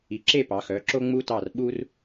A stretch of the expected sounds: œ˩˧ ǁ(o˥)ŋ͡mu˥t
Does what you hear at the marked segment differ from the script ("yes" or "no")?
no